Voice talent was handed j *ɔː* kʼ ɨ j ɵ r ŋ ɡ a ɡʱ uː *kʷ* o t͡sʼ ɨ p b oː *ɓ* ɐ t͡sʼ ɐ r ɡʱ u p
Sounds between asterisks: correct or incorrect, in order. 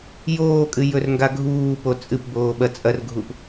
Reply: incorrect, incorrect, correct

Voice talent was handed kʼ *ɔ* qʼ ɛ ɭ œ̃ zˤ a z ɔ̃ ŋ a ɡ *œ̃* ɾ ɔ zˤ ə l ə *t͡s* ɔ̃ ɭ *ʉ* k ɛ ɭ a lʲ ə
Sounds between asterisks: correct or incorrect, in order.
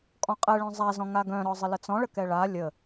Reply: incorrect, correct, correct, incorrect

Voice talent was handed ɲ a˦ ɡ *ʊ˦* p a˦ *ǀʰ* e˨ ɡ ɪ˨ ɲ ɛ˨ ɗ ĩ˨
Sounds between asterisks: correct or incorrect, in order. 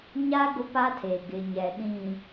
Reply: correct, incorrect

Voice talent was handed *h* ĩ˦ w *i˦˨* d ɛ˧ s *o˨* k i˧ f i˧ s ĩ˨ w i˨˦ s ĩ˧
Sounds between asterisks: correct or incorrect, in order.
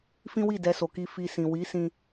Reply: incorrect, correct, correct

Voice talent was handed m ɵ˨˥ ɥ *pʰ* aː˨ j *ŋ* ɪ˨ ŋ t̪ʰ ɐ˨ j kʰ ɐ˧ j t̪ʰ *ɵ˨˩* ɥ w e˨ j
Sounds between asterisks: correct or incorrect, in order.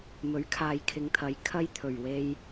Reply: incorrect, incorrect, correct

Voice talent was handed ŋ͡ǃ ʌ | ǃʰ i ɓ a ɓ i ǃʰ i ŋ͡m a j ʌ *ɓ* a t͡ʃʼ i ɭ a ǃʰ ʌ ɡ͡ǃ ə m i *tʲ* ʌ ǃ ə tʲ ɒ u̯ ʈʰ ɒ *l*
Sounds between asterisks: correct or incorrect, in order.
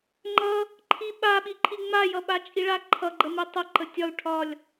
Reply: correct, incorrect, incorrect

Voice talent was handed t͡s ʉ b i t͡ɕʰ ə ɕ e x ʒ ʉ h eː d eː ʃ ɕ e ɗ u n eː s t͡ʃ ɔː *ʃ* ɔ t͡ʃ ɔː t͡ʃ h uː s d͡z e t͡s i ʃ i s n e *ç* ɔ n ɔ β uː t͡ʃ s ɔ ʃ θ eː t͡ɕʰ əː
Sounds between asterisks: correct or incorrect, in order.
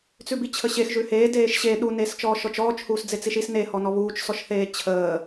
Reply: correct, incorrect

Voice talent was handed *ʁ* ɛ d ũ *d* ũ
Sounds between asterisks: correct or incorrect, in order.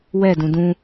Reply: incorrect, correct

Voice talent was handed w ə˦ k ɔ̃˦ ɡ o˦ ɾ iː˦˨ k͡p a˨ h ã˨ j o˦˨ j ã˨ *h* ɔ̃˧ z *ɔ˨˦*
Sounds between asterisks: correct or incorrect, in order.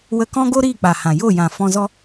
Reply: incorrect, incorrect

